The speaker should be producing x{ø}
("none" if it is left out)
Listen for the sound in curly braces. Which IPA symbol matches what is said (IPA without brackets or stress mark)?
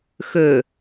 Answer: ø